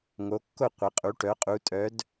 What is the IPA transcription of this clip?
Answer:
ŋ o˨˦ kː o˥˨ qʷ ɐ˨˦ qʼ u˨˦ ʈ œ˨˦ qʼ u˨˦ tʼ œ˨˦ d

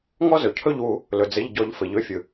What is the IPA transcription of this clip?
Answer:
ŋ ɔ˦ z ɵ˩ cʰ ɵ˦˨ ʎ w u˨˩˦ | l ɵ˩ d͡z ɘ˩˧˩ ʎ ɟ ɔ˨˩˦ ʎ f ɘ˩ ʎ ɵ˩˧˩ fʲ ɯ˩

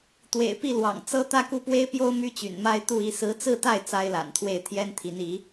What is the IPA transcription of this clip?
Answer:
t̪ w ḛ˨˩ ɪ̯ p i˥˩ l w ɑ̰˨˩ ŋ t͡s ɤ˥ t̪ ä˥ k u˥˩ p w e˥ ɪ̯ p j o˥ ʊ̯ m y˥ t͡ɕ y̰˨˩ n m a˥ ɪ̯ t̪ u˥˧ i˥˩ s ɹ̩˧˥ t͡s ɹ̩˥˧ t̪ a˥˩ ɪ̯ t͡s a˥ ɪ̯ l a̰˨˩ n t̪ʰ w e˥˩ ɪ̯ t̪ʰ j ɛ˥ n t̪ʰ i˧˥ n i˧˥

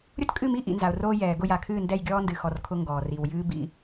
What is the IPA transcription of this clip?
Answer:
ɾʲ ʊ˦ t kʼ ɨ˦˨ m i˦ ʔ ḭ˨ n z a˨ ʊ̯ r oː˦ j ɛː˨ ɡ ʊ˦˨ j a˨ kʰ ɨː˦˨ n d ɛ˦˨ j ɡʲ ɔː˦ n d ɨ˨ x ɔ˨ r kʰ ʊ˦ ŋ ɡ ɔː˨ r i˨ w j ɨː˦ b ḭ˦

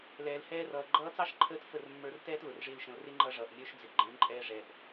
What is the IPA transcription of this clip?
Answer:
l ɛː˨ l h ɛː˧ r ʌː˨ ɡ͡ǃ ʌː˧ t͡s ɑ˦ ʃ ǃʰ əː˧ t f ə˦˨ r mː ə˞˧ r t ɛː˦ t l ʊ˨ r ʐ ɪː˦ l ʃ ə̃˧ l r ɪ˦ ŋ͡ǃ ʌ˧ ʐ ʌː˨ ʔ mʲ ə˞˧ ʃ d͡z ɪ˨ ɡ͡ǃ ɛ̃˨˦ ǃʼ ɛː˦ ʐ ɛ˧ ʔ

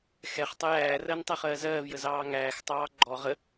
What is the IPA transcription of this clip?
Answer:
x ɛ χ tˤ ə j æː r ɜ n tˤ æ χ ɜː z ɜː v j ə z ɑː ŋ æː x tˤ ɑː ɡ͡ǃ ɔ ʁ ə

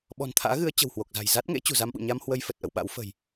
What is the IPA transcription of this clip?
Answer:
ɓ ɔ̤˨˩ n t̪ʰ a̰ː˧˥ ɣ ɨ˨˦ ə̯ t͡ɕ ə̤˨˩ w h w o˨˩ k̚ z a̤˨˩ j z a˦˥ t̚ ŋ ḛ˧˥ t͡ɕ ṳ˨˩ z a˧ m ɓ ṵ˧˨ ɲ a˧ m h w ə˧ j f ə˨˩ t̚ ʔ ə̰˧˨ w ɓ a̰˧˥ w f ə̤˨˩ j

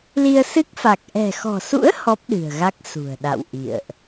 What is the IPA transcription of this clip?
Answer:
l i˧ ə̯ s ɨ˦˥ k̚ f a˨˩ k̚ ʔ ɛ̤˨˩ x ɔ̤˨˩ s ṵ˧˥ ə̯ h ɔ˦˥ p̚ ɗ ɨ̤˨˩ ə̯ ɣ a˦˥ k̚ s ṳ˨˩ ə̯ ɗ a̰˧˨ w ʔ ḭ˧˨ ə̯ ʔ

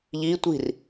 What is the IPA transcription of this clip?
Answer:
ʎ i tʷ i̤ r

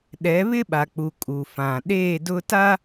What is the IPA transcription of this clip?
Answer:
ɗ ɛ˨˦ β ɪ˦ ɓ a˨ k͡p u˨ kʼ u˨ f ã˨ ɗ eː˦˨ d ʊ˦ t a˦

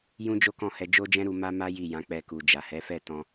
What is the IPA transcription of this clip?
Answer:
j ũ˦ d͡ʒ o˦ k ɔ̃˦˨ h ɛ˧ d͡ʒ o˦ d͡ʒ ɛ̃˦ ɾ u˧ m a˦ m a˦ j i˦˨ j ã˨˦ k͡p ɛ˧ k u˨ d͡ʒ a˨ h ɛ˨˦ f ɛ˦˨ t ɔ̃˧

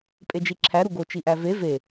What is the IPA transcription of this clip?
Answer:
pʼ e d͡ʒ i ǁʰ æ ɾ u ɡ o t͡ʃ i ʔ æ v e v e

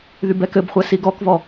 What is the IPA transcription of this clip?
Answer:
ð y b ɛ k ɘ b χʷ ɛ s i ɡ ɔ k v ɔ

